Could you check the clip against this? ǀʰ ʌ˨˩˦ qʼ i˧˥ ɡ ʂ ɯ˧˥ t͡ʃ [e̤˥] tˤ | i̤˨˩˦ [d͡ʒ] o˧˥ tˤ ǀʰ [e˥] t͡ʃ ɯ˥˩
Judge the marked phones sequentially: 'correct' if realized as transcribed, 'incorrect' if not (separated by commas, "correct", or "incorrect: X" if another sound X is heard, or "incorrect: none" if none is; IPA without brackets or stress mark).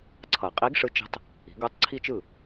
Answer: incorrect: e̤˧˥, incorrect: ɡ, incorrect: i˥